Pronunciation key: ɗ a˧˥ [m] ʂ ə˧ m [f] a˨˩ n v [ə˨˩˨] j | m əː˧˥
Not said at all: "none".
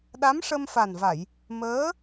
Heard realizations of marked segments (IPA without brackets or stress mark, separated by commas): m, f, a˨˩˨